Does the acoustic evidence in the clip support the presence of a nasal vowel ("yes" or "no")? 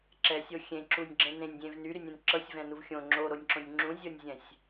yes